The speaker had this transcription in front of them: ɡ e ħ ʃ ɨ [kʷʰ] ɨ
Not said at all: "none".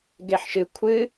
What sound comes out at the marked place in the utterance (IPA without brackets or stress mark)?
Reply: kʷʰ